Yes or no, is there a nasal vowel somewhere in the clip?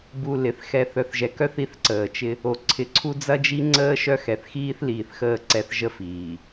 no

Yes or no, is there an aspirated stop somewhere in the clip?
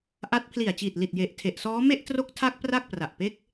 yes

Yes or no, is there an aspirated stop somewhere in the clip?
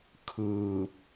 yes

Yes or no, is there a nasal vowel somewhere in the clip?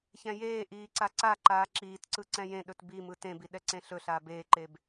yes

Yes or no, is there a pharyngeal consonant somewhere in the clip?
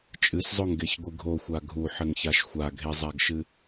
yes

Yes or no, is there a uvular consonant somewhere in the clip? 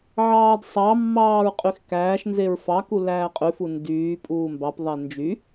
yes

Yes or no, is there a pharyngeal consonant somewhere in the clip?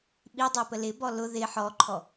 yes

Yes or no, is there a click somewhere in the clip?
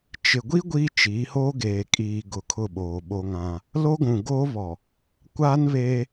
no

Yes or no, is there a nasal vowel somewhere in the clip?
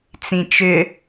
yes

